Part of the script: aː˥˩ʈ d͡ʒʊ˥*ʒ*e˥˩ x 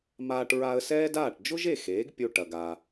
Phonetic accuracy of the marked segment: correct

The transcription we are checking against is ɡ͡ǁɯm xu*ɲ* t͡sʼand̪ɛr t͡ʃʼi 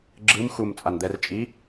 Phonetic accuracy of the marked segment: incorrect: m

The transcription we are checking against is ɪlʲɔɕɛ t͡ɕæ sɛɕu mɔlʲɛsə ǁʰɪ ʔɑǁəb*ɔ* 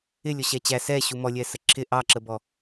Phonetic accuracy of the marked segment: correct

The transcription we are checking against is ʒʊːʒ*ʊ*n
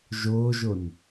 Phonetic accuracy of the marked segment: correct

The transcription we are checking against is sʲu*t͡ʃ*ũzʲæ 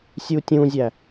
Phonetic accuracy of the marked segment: incorrect: tʲ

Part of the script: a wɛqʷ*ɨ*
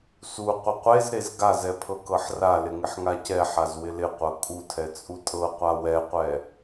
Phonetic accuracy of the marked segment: incorrect: ɛ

